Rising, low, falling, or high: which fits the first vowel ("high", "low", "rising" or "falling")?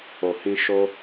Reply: low